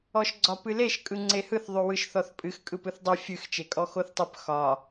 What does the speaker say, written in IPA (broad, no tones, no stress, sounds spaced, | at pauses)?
ɔ ʃ ɡ͡ǀ ɒ p ɨ l e ʃ kʼ ɯ ŋ͡ǀ e h ɯ θ ðˤ ʉ w ɯ ʃ θ ɔ θ pʼ ɨ x kʼ ɯ p ɯ θ dˤ i fʲ ɨ x t͡ʃ e kʼ ɔ x o θ tˤ ɨ p x ɒ